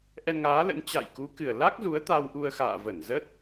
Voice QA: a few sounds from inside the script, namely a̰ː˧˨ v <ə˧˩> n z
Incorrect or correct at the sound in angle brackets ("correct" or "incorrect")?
correct